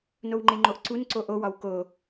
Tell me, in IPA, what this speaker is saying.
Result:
n o w ŋ͡ǃ e ŋ͡ǃ o ʔ ǀ u n ǀ o ʔ o w ɒ w k o

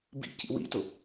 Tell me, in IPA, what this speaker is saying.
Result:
b ḭ c ḭ w ḭ t ʊ

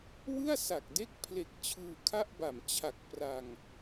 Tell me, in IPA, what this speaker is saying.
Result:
w ɯ˥˩ a̯ s a˨˩ k̚ d e˦˥ k̚ pʰ l e˨˩ k̚ t͡ɕʰ ɯː˧ kʰ a˥˩ ʔ b a˨˩ m t͡ɕʰ a˨˩ k̚ p r a˧ ŋ

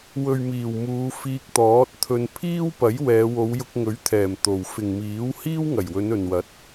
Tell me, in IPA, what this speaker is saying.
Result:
w ɵ˨ ɥ m iː˨˩ w m uː˨˧ f iː˧ k̚ t̪ ɔː˨˥ t̚ t̪ʰ ɵ˧ n pʰ iː˥ w p ɐ˨˥ j w ɛː˨˧ w o˨˧ w j ʊ˧ k̚ ŋ ɵ˨˥ ɥ t̪ʰ ɛː˨˩ m t̪ o˨ w f ɪ˨ ŋ m iː˨˥ w h iː˥ w ŋ ɐ˨˩ j w ɵ˨˧ n ɵ˨ n w ɐ˨˥ t̚

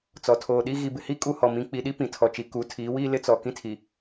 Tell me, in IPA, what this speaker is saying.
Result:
t͡s ɔ˨ tʰ oː˨ ɗ i˦ ɣ i˨ b ɪ˨ h i˦ kʼ u˦˨ h ɔ˨ m ĩ˨˦ k͡p i˨˦ ɗ i˦ p ĩ˨ tʰ ɔ˨ t͡ʃ i˨ k u˨˦ tʰ iː˨˦ w iː˦ l ɪ˦ t͡s ɔ˨ k ĩ˦ tʰ i˨

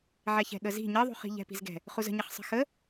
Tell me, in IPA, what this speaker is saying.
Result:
ʕ ɛ ç ɛ̤ ɠ ə z i̤ ɲ ɘ ðˤ ṳ χ i̤ ʎ ɛ̤ p i̤ z ɡ ɛ̤ | χ u z ə̤ ɲ ɪ χ sˤ ə̤ x ə

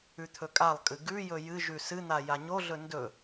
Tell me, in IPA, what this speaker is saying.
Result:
ʉ t̪ʰ ɵ kʼ a lˠ kʼ ɨ ɡ ʉ j ɵ j ɨ ʒ ʉ s ɨ n̪ a j a ɲ o ɮ ɵ n d ɵ

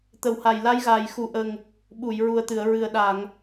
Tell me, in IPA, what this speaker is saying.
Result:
t̪ ə˨˩ w h a˨˩ j l a˧˥ j ɣ aː˨˩ j x u˨˩ ʔ ə˨˩ ŋ | ɓ u˨˩˨ j ɹ u˨˩ ə̯ t̪ ɨ˨˩˨ ə̯ ɹ ɨ˨˩ ə̯ ɗ a˨˩˨ ŋ

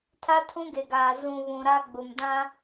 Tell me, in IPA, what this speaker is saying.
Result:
tʰ a˦ tʰ ũ˦ ɡ e˨ ɡ aː˨ z ũ˨ β ũ˨ ɾ a˦ ɡ͡b ʊ˨ m d ã˦

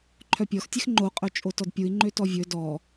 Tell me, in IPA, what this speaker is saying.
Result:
ǃʰ œ pʲ ɔ x tʲ ɛ x ŋ͡ǃ o qʼ œ t͡ʃʼ o t ɔ d pʲ u i̯ ŋ͡ǃ ø t ɔ vʲ ɵ d ɔ

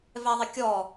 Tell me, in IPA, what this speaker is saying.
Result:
v ɛ ðˤ ɪ kʲ ɔ

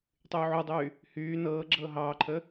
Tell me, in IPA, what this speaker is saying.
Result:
tˤ yː ʕ u dˤ yː | h yː n ɤː ɡ͡ǁ ɤː ɦ ɑː ǃʰ əː

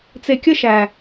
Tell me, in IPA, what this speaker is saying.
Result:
t͡s e˨ kʲ ə˦ ʃ æ˨

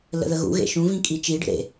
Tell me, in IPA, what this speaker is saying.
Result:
l ə̰ ð ə ɣ ṵ ɣ ḛ ʃ ũ v ĩ kʼ i t͡ʃ i ɖ ə̰ ɾ ḛ

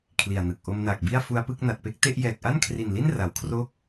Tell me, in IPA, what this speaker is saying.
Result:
kʰ l i˨˩ a̯ n ɯ˨˩ k̚ ʔ o˧ m n aː˨˩ k̚ b i˥˩ a̯ f u˧ a̯ p ɯ˥˩ k̚ n a˨˩ t̚ p e˥˩ k̚ t e˥˩ ʔ j ɛː˨˩ k̚ ʔ a˥˩ n kʰ r i˨˩ n l i˥˩ n r a˨˩ w kʰ r oː˥˩ k̚

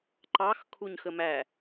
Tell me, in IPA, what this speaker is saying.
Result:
ǃ ɑ x kʰ u ɲ x ə m æ

